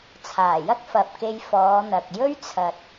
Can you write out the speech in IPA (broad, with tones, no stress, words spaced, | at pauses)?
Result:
t͡sʰaː˨˩jɐ˥k̚fɐ˨p̚ke˧j fɔː˨˧n̪ɐ˨k̚ jɵ˥ɥt͡sʰɐ˨t̚